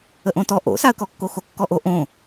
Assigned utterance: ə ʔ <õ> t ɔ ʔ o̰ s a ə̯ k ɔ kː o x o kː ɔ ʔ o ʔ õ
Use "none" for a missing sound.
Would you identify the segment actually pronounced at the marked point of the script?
õ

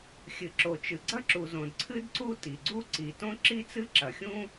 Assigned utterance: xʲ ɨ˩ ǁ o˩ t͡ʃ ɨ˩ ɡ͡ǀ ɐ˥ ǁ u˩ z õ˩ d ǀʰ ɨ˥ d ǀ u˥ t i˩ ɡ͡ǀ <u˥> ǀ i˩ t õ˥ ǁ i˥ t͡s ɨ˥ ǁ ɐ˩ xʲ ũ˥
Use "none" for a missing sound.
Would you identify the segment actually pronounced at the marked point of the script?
u˥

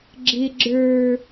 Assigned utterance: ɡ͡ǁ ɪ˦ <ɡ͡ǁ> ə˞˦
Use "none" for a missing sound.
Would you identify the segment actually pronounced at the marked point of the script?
ɡ͡ǁ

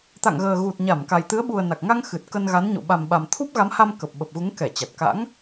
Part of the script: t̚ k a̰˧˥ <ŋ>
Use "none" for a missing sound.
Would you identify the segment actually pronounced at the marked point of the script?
ŋ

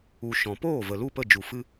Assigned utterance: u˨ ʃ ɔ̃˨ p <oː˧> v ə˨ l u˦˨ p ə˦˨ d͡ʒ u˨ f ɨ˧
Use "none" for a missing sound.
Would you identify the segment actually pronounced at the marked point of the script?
oː˦˨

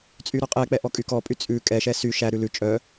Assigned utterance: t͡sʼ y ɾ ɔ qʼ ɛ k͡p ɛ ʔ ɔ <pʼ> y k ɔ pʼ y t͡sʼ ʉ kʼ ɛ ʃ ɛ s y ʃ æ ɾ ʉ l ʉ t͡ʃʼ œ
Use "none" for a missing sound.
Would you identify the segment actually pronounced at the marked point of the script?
kʼ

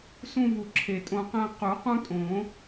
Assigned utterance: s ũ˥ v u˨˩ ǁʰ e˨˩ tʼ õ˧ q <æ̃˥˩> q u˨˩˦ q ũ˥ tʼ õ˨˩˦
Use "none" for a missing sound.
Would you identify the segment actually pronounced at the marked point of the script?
æ̃˥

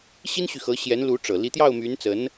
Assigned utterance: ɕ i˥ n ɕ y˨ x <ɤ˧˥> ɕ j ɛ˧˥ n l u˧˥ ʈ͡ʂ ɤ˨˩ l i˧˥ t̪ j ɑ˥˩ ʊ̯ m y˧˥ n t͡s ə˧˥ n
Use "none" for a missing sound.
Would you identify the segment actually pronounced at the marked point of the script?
ɤ˧˥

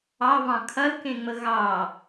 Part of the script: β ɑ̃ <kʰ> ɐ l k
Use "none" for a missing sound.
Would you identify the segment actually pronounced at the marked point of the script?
kʰ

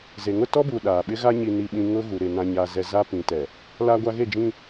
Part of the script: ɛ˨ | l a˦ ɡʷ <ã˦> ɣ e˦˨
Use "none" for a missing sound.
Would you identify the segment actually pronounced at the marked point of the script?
a˦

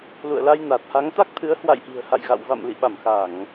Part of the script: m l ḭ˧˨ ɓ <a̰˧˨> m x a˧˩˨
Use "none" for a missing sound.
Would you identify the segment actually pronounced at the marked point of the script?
a˧˩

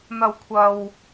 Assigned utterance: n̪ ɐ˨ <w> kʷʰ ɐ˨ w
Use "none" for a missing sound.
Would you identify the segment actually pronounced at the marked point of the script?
w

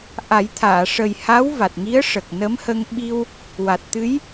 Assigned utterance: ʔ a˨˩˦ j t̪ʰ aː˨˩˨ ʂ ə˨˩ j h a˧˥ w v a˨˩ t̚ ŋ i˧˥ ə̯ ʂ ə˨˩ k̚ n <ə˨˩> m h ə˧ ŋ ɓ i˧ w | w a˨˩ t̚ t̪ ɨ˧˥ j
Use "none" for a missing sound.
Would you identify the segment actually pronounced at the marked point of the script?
ə˧˥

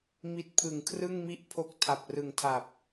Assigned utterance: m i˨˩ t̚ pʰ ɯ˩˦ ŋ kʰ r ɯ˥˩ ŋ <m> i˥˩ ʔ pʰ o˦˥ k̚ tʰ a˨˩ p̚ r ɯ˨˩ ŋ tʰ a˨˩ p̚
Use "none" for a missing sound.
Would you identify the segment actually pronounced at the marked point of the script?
m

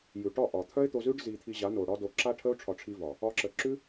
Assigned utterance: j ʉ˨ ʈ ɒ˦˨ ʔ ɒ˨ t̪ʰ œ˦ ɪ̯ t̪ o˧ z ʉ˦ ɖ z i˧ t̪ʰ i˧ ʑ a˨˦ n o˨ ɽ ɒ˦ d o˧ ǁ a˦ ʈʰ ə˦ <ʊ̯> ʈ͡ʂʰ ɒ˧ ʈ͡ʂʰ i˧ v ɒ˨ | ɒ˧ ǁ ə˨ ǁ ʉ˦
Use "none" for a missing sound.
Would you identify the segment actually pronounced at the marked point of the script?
ʊ̯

